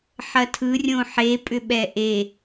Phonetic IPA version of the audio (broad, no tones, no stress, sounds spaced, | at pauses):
ħ ɐ tʰ ɯ rʲ õ ħ e pʼ ʏ ɓ ɛ ʔ e